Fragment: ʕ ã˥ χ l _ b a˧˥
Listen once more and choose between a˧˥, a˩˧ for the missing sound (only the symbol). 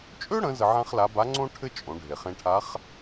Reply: a˧˥